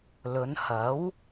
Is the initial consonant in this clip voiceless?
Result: no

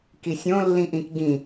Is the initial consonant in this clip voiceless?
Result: yes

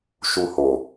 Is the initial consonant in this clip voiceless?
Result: yes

